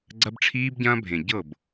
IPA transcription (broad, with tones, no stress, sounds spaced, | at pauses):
ɡ͡ǀ ɐ˦ b ʈ͡ʂʰ iː˦ b ɟ ɐ̃ː˦ bʱ ẽ˨ ɟ ɤ˦˨ b